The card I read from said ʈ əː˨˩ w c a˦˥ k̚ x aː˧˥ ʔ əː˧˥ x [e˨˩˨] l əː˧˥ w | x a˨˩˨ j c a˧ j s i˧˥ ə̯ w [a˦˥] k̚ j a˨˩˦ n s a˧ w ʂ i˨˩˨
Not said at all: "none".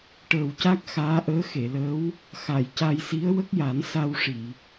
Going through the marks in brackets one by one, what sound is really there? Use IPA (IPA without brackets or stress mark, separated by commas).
e˨˩˨, ə˦˥